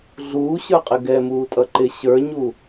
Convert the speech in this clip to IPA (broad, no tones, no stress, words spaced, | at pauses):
ɮuːɕə˞qʼɪ ɡɛmuːtʼʌ ǃɪ ɕə˞ɲu